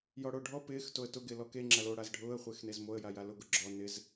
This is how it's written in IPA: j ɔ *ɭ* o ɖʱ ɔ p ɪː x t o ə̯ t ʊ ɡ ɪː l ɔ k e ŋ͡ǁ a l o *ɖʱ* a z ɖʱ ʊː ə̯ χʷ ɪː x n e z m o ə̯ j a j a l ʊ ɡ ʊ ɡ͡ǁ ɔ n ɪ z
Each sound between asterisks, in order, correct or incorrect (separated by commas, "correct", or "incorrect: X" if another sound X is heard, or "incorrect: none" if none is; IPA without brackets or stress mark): incorrect: ɽ, incorrect: ɽ